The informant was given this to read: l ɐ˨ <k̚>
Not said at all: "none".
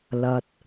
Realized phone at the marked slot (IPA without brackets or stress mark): t̚